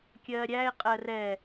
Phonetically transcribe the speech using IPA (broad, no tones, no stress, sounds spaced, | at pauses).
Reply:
kʲ ɜː ɾʲ æ ɪ̯ qʼ ɜ r ɛ